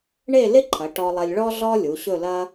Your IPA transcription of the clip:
ɳ e˥˧ l ɪ˥ ǃʰ ɐ˩˧ ʈ ɔ˧ lˠ ɐ˧ lʲ ɭ ɔ˥ ɮ ɔ˥ lʲ u˩˧ ɕ ɵ˥˧ l ɐ˥

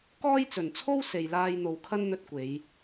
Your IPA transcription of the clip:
k ɔː˥ j t͡s ɵ˨ n t͡sʰ o˥ w s e˨ j l aː˧ j n̪ o˨ w kʰ ɐ˥ n n̪ ɵ˧ t̚ kʷ e˨˧ j

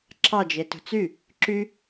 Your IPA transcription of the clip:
ǁʰ ɑ d͡ʒ e t ṳ t͡s y | ǁ y

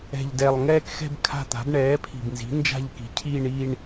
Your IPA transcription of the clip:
ɛ̤˨˩ ʎ d ɛ˨˩ lˠ ŋ ɛː˥˧ k x ɛ̤˥˧ b kʰ a̤˥˧ t̪ a̤˩˥ b ɳ ɛː˩˥ pʰ i̤˨˩ b n z i̤˩˥ n d͡ʒ a̤˥˧ ʎ k i̤˩˥ cʰ iː˥˧ ɳ i˥˧ ɳ

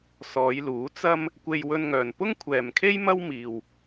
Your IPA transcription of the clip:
s ɔː˨˧ j l uː˨˥ t͡s ɐ˧ m | kʷ e˧ j w ɵ˧ n ŋ œː˨ n p ʊ˥ ŋ kʷʰ ɛː˨ m kʰ e˥ j m ɐ˥ w m iː˨ w

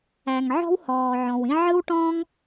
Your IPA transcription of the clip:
æ˩ ŋ ʕ ɔ̤˥ w h ɔː˩ ʕ ɔ̃˩ w ĩ˥ ʕ ɯ˥ w ʈ ɔ̃ː˥ ŋ

